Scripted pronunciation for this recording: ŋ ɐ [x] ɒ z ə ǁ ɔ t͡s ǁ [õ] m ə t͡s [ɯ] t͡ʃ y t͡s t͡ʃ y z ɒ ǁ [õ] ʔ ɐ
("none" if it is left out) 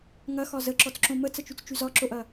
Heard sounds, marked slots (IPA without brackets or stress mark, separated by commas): x, õ, ə, o